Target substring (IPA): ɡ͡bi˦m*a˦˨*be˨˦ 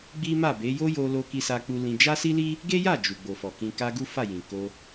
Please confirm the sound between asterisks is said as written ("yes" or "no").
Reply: yes